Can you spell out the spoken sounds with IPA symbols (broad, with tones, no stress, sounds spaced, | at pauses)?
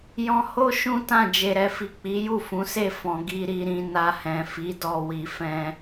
j ɔ̃˧ h o˦ ʃ ũ˦ t ã˦˨ d͡ʒ e˨ ɾ ɛ˨ f i˨ k͡p i˨˦ j u˦˨ f ũ˨˦ s e˦˨ f ɔ̃˨ ɡ i˧ ɾ i˧ ɾ ĩ˧ n a˧ h ɛ̃˨ f i˨˦ d ɔ˧ w i˧ f ɛ̃˦